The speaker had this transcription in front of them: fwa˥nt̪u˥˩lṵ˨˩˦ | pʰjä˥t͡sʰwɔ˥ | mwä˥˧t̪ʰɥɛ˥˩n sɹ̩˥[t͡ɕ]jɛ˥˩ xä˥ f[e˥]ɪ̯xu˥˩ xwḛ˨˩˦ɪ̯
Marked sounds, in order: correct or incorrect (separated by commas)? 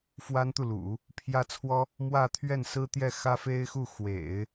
incorrect, correct